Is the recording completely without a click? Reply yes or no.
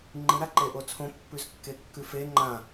no